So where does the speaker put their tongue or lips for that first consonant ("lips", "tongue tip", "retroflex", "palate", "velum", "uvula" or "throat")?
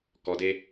velum